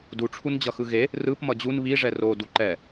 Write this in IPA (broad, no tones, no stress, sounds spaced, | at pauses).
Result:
d u ʈ͡ʂʰ u n d͡ʑ ʌ x ɯ ɣ e | r ɯ p m ʌ d͡ʑ u n β i ʐ ɛ r o d u ǃ ɛ